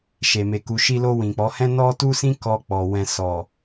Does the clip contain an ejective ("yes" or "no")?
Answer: no